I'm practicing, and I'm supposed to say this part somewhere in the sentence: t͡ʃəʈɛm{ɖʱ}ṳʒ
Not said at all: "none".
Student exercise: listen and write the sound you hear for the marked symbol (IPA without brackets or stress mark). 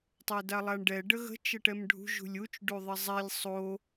ɖʱ